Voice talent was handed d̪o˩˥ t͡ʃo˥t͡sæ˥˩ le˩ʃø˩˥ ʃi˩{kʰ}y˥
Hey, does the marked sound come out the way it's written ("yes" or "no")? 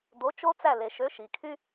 yes